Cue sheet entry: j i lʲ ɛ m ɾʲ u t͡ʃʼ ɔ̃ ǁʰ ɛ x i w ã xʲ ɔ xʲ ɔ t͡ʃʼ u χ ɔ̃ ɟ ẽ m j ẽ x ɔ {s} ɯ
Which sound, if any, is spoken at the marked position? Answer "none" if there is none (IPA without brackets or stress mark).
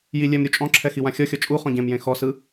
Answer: s